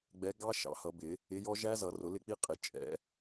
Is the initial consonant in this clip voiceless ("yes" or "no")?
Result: no